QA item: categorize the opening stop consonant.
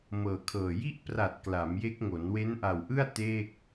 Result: aspirated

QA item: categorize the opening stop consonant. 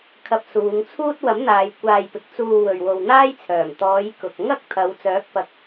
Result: aspirated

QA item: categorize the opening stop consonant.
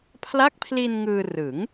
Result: aspirated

